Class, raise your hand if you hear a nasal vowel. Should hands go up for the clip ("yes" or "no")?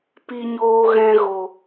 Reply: yes